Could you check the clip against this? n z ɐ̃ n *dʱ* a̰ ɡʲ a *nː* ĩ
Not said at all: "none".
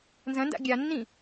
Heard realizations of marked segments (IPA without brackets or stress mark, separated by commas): d, nː